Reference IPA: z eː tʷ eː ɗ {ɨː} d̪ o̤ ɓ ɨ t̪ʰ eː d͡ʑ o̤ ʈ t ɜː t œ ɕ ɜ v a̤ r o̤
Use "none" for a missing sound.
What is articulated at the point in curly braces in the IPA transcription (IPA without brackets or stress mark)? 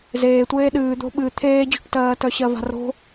ɨː